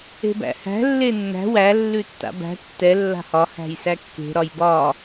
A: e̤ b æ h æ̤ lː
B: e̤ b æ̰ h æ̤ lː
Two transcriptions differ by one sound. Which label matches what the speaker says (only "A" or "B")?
B